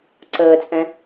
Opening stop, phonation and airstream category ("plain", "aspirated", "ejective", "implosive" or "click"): click